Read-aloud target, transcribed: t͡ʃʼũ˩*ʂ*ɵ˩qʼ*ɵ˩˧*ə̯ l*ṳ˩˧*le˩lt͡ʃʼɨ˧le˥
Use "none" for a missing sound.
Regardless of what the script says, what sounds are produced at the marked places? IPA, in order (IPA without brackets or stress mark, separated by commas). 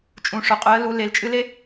ʂ, ɵ˩˧, u˩˧